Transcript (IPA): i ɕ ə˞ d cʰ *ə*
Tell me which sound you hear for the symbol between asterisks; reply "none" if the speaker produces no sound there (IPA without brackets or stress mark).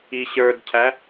æ